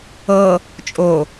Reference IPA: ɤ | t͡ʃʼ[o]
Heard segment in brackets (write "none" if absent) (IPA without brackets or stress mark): o